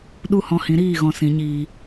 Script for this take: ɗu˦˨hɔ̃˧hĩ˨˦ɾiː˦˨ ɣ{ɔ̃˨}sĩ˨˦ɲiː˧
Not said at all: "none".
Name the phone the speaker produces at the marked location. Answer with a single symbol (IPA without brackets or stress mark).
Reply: ɔ̃˧